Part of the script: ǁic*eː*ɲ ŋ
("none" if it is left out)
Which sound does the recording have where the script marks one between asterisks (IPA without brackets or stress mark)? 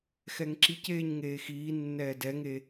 eː